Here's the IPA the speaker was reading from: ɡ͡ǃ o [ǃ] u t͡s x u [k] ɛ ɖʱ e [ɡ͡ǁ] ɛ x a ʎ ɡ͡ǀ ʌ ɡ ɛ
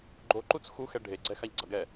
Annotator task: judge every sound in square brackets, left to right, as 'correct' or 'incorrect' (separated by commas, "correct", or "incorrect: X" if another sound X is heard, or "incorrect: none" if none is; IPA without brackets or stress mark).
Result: correct, incorrect: x, incorrect: ɡ͡ǀ